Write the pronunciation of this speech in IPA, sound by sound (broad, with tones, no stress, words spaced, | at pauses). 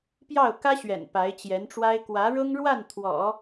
pjɑ˥˩ʊ̯ kä˥ɕɥɛ̰˨˩n pa˧˥ɪ̯t͡ɕjɛ˧˥nʈ͡ʂwa˥ɪ̯ kwä˧˥ɻʊ˥ŋɻwa˥˩n t̪ʰwɔ̰˨˩˦